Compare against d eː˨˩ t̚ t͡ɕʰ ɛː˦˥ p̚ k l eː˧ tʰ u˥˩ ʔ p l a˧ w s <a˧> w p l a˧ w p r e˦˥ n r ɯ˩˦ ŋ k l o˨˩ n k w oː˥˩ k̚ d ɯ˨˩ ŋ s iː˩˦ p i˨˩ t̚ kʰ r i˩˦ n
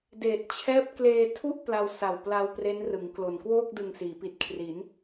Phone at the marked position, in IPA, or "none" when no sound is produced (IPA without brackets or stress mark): a˨˩